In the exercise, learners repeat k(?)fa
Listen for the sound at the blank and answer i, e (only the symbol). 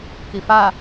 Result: i